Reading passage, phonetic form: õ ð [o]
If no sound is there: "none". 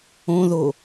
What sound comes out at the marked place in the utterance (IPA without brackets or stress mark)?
o